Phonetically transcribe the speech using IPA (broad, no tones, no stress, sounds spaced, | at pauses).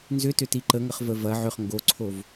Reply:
n z ʏ t ʏ t i ǃ ə ŋ ə χ v ə v ɐ ʕ ʏ χ ŋ ɡ o ǀʰ o v